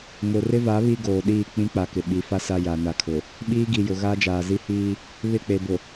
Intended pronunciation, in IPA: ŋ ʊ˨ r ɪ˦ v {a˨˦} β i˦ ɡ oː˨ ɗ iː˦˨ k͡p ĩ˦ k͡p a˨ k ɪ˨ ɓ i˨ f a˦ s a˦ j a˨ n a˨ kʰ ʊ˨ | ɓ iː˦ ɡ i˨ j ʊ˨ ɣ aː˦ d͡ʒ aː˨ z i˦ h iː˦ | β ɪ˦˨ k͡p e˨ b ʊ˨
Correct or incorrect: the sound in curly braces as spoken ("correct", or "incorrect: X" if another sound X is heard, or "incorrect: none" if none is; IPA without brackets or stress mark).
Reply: correct